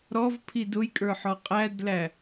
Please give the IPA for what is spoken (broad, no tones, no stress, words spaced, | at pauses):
ɾɔvpʰi dʊjkʼə˞ħɔ qʼædlæ